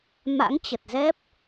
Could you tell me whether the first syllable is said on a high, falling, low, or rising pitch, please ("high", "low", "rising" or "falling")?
rising